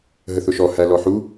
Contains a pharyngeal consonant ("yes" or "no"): yes